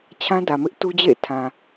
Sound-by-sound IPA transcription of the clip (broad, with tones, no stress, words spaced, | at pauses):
t͡ɕʰã˦dä˨mɪ˦ʔ tu˦d͡ʑḛ˦˨ɪ̯ tʰã˨